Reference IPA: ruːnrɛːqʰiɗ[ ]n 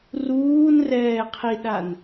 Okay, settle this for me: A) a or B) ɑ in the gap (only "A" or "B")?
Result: A